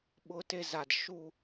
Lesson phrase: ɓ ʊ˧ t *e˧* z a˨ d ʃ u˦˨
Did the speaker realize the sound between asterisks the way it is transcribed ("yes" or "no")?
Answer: yes